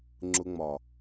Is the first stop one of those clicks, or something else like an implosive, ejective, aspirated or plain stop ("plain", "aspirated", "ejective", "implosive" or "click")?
click